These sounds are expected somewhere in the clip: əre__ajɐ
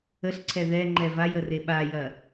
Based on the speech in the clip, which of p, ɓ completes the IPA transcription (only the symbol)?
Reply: ɓ